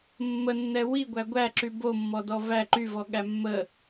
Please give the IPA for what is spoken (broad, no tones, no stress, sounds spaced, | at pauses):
mː ə nː ɛ w i ɡʷ æ ɡʷ æ ǁ y b o mː ɔ d ɔ v æ ǃ y v ɔ ɠ æ mː ə